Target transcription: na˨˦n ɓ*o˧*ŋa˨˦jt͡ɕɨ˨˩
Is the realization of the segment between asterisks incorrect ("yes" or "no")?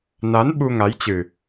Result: yes